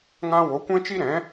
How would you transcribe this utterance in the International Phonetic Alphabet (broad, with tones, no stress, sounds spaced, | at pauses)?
ŋ ã˧ w o˨˦ kʷ ɛ̃˦ t͡ʃ i˦ ɾ ɛ̃˨˦